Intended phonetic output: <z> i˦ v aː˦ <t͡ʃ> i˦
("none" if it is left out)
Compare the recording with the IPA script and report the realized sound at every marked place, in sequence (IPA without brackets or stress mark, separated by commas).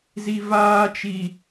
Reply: z, t͡ʃ